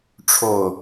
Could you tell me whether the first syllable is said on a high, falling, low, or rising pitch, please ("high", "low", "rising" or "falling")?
low